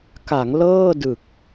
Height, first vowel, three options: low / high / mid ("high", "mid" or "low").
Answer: low